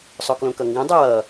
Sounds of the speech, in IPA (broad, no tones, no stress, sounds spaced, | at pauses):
sˤ o k l õ k ʌ ŋ ɡ ũ dˤ ɯ w ʌ